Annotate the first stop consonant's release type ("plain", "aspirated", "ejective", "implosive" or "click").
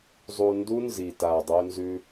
plain